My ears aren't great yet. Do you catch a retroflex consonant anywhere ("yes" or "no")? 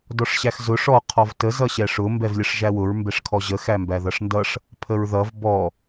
yes